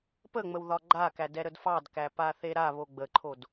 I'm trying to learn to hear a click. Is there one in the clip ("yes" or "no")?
yes